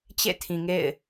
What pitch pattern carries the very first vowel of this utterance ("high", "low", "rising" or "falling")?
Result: falling